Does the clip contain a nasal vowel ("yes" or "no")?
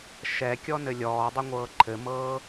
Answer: no